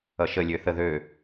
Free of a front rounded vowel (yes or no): no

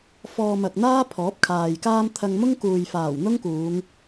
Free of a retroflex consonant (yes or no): yes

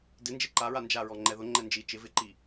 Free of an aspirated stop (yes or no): yes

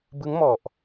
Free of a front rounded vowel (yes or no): yes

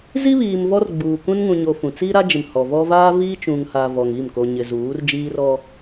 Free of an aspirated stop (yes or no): yes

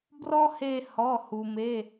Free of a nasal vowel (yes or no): yes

